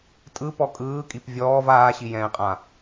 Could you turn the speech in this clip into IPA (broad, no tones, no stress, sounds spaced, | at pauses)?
tʼ ɯ p ɔ kʼ ɯː kʼ i p vʲ ɔː v aː ɕ i j ɛ̃ː qʼ ã